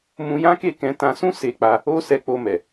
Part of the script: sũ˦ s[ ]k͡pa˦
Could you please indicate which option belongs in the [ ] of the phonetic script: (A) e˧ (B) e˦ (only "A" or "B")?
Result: B